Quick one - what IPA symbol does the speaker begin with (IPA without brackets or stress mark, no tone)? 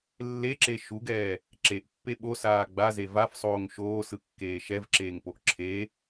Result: lː